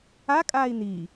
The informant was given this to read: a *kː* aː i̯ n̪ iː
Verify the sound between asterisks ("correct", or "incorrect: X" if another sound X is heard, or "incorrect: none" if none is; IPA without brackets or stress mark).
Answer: incorrect: kʼ